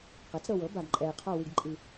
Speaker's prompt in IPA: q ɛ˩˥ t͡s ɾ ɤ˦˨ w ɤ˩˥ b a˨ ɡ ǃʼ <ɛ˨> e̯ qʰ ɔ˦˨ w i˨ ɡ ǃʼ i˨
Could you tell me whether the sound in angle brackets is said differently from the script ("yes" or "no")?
no